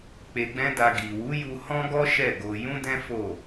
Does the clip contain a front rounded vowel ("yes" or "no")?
no